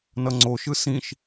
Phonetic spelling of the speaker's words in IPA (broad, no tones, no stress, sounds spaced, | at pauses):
n ʌ ŋ͡ǀ o ʃ ɯ s ĩ ʃ